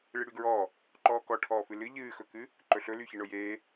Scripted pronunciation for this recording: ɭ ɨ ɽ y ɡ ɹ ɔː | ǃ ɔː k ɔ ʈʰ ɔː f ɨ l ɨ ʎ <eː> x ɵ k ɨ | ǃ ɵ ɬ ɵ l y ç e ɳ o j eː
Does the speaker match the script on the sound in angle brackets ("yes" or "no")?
no